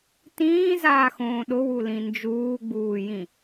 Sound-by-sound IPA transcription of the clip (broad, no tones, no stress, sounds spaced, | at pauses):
t ĩː z aː x õː ɗ ʊ w u l ĩ n d͡ʒ uː ɡ͡b uː j ĩ